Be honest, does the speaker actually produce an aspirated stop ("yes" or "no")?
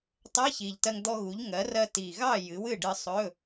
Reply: no